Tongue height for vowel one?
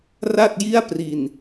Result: low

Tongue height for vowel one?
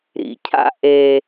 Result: high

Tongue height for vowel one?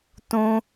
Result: high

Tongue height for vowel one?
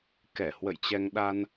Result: mid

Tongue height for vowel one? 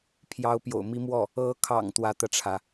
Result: low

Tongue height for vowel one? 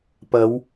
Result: low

